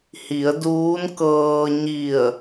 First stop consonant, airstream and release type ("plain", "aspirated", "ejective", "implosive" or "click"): plain